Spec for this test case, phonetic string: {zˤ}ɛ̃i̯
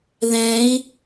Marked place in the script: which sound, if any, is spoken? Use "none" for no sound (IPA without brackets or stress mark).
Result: ð